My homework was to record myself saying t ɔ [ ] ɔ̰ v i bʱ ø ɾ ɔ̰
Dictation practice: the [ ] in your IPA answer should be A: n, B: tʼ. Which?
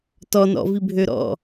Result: A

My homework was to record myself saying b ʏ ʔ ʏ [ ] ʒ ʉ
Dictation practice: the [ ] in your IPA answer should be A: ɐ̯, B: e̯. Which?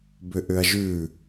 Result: A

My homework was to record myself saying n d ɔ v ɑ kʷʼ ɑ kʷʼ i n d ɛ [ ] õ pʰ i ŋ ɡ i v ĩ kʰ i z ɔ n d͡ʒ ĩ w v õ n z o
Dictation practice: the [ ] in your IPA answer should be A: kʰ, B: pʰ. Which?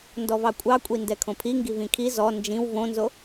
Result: A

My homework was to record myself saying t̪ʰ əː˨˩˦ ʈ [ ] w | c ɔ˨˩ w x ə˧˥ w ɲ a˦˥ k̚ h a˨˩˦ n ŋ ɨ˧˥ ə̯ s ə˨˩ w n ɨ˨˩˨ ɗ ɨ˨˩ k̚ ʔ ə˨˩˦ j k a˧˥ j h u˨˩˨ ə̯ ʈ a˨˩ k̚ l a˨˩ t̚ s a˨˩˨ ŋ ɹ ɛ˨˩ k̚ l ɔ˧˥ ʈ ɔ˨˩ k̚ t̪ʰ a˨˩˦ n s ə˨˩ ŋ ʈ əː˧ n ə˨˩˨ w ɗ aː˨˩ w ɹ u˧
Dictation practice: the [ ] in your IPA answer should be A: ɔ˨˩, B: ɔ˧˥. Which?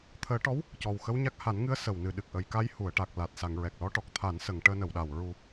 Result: B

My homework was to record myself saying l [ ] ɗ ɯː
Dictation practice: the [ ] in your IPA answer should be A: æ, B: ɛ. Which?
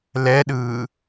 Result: B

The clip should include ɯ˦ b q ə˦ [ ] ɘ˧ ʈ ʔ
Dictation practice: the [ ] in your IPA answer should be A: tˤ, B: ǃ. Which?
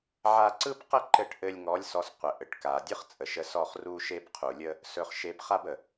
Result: B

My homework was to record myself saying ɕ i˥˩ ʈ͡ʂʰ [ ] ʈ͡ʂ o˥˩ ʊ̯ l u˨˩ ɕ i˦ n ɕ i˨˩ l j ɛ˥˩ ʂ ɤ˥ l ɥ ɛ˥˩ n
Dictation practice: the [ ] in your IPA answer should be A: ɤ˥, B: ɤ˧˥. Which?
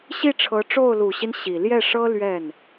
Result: B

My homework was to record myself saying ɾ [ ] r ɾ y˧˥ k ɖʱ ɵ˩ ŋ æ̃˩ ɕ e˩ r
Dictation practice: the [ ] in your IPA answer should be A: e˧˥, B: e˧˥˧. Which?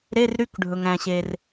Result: B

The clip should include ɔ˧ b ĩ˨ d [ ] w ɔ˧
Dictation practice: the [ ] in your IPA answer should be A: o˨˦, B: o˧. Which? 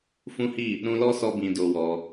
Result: B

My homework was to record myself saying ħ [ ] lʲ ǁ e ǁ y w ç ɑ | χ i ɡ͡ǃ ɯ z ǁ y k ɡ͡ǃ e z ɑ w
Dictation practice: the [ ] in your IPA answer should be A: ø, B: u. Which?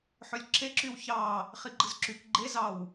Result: A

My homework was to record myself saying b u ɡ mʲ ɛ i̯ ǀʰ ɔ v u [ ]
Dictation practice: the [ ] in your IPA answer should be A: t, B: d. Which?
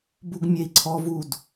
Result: B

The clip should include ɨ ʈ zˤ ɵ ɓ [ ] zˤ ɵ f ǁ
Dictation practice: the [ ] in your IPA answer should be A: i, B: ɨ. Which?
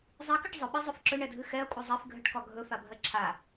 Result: B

